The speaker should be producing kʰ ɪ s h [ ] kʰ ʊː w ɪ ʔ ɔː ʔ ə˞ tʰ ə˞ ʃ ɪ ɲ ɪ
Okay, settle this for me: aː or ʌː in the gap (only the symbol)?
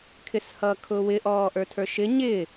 ʌː